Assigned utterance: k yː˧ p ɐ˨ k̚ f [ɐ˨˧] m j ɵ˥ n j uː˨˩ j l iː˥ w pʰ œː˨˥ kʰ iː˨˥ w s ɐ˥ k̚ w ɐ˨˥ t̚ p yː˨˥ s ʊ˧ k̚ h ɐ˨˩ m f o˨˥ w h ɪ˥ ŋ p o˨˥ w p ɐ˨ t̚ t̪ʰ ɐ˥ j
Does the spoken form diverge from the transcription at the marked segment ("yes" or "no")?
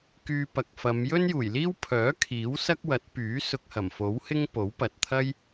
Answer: no